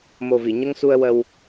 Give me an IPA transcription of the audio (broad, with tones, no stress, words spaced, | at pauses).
mo˨˩vi˨˩˨ɲə˧ŋ su˧ə̯wə˧w